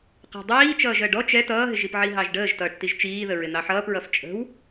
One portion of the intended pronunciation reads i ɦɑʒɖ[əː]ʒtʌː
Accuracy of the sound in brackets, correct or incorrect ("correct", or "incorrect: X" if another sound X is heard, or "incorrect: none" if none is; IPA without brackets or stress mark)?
correct